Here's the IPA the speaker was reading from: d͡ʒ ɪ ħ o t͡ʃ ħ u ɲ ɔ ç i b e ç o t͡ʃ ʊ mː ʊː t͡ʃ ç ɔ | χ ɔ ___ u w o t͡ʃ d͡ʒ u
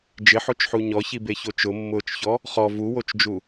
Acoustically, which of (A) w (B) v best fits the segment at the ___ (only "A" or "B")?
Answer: B